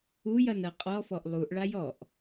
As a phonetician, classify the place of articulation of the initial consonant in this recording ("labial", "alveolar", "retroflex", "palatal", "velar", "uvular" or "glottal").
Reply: palatal